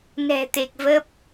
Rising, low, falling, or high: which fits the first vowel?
low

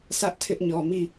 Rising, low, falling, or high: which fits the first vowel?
high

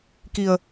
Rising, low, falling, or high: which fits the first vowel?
low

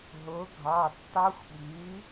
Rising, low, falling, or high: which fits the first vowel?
rising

